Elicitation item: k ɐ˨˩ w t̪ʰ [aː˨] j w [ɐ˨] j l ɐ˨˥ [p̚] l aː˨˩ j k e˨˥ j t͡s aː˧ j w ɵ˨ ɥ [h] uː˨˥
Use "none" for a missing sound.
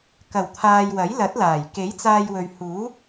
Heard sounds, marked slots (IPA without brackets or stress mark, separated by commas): aː˨, ɐ˨˥, t̚, h